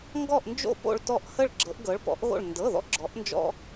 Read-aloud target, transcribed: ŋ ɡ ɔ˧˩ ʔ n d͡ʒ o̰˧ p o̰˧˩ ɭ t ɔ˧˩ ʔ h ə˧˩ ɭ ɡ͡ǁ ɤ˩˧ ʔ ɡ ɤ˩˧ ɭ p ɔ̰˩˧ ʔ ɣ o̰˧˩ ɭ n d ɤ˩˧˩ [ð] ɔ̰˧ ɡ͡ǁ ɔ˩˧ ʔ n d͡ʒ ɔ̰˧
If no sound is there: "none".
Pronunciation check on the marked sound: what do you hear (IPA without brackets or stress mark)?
ð